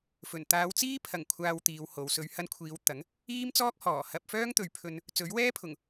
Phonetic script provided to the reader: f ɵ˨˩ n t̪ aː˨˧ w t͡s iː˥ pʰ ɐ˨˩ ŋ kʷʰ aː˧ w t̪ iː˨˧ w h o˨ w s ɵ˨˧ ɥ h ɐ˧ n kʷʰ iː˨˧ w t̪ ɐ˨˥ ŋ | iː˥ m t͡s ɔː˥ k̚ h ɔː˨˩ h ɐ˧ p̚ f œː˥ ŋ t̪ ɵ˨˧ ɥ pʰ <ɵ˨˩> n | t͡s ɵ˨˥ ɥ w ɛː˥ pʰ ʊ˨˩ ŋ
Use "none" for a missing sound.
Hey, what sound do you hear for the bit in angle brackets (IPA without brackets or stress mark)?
ɵ˧